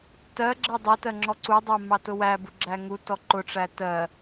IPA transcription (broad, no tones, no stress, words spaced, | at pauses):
tɜɡ͡ǁɜ dˤɛtɜŋ͡ǁɔ ǀudˤɜmɑtʊ wæbuɡ͡ǁæ ŋutɔ ǃʊʈ͡ʂæ tɜ